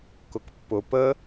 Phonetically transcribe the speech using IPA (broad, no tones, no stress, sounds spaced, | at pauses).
k ʊ k pː ʊ p ə